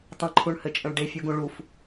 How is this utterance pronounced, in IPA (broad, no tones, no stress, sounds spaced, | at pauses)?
tˤ ə̃ ǃʰ u ɳ h ɘ t͡ʃʼ ə̃ ɭ ɖ e fʲ u ɡ ũ ɭ u f